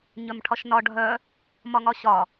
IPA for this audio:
ɲœmʈʰɒʃnɒ ɖʱœ | mɒŋɒɕɒ

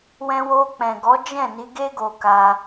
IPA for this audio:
wɛ̃˧wo˧k͡pɛ̃˨ɡɔ˨˦ d͡ʒɛ̃˦˨ni˨˦ɡe˦ ɡo˧ka˧

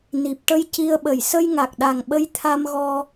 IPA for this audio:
ni˨˩p̚ʈə˧j ci˧ə̯ ɓə˨˩˨jsə˧jŋa˨˩k̚ɗa˨˩ŋ ɓə˧jt̪ʰa˧mɣɔ˧

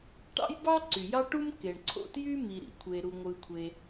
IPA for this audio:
ʈɑ̰˥jbɑ˥ ǀy˩jɑ˥ʈu˥m ke˩ɳǀʰo̰˥tjy˥ mi˩ɾḭ˩kʷʰe˩ɾu˩ ŋʷɯ˩kʷʰe˩

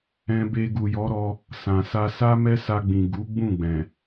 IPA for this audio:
ɛ̃˧be˧ ɡu˨jɔ˨˦ ɾɔ˧ | sã˨sa˧sa˦ mɛ˦sa˧ɡ͡bĩ˨ ɡu˨˦ɡ͡bũ˦˨ɡ͡bɛ̃˨

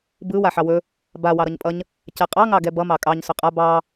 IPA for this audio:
bɯ waħɑwɵ | ba wɑɾʌɲpʼʌɲ | cɛqʼɑ ŋɑɡɛbʌ mɑkʼɑɲ sɵqʼa bɑ

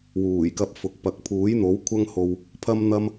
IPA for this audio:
wuː˨˩jkɐ˧p̚ fʊ˨˥k̚ pɐ˨k̚pʰuː˨˥jn̪o˨˥w kʷʰɐ˥ŋho˧w | pʰɐ˥mn̪ɐ˥m

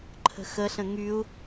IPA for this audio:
ǃʰə̤xəɬə̃ ŋyu̯

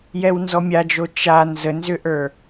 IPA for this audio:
jɛwnzɔmʲad͡ʒo t͡ʃa nzənzʏʔə˞

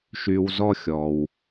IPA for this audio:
ʃy˧wzɔ˥xʲɔ˩w

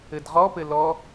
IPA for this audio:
ɘdʁɔpɘ lɔ

